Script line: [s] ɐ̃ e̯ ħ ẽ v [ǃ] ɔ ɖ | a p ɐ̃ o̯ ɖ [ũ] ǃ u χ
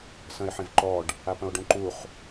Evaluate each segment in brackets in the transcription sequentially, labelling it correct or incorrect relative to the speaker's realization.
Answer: correct, correct, incorrect

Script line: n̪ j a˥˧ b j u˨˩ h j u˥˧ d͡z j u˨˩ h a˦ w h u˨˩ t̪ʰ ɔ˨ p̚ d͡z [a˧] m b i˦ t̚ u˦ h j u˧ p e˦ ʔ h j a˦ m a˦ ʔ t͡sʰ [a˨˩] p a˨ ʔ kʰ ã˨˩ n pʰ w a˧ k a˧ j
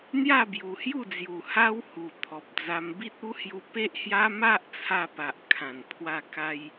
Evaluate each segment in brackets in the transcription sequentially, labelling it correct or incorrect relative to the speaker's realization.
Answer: correct, incorrect

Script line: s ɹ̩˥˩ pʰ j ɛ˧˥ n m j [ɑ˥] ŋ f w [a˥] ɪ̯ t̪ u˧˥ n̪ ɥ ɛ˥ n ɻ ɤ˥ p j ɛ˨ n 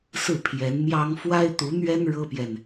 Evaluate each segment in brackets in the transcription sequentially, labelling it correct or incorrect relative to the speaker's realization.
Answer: correct, correct

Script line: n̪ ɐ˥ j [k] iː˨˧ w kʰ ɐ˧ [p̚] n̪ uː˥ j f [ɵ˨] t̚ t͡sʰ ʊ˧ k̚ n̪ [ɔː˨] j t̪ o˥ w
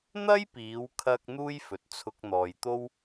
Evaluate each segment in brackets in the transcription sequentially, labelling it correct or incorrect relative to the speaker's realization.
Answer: incorrect, incorrect, correct, correct

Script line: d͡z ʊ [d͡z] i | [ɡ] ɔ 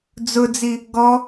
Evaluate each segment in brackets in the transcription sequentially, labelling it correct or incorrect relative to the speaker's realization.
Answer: correct, correct

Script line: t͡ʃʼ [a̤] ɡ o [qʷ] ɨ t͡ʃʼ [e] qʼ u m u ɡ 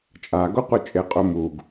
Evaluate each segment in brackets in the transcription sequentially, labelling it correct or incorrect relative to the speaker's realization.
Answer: incorrect, correct, correct

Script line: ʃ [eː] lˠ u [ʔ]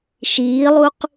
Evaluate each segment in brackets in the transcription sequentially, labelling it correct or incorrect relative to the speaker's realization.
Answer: incorrect, incorrect

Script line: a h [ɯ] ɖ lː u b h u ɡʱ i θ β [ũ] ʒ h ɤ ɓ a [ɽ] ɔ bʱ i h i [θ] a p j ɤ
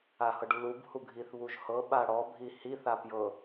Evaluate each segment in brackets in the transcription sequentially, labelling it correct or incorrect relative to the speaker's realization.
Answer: incorrect, incorrect, correct, correct

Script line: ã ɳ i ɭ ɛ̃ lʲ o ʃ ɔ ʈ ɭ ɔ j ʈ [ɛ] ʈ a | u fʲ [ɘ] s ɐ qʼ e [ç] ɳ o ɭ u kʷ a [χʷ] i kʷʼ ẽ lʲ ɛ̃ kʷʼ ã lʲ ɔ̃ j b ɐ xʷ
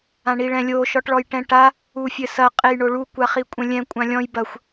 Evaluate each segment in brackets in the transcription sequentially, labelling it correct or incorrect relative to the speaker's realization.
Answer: incorrect, correct, incorrect, incorrect

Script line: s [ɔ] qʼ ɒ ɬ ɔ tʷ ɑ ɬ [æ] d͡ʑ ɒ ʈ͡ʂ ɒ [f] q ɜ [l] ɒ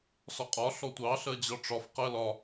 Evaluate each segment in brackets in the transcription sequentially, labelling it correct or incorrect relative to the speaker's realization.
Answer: correct, incorrect, correct, correct

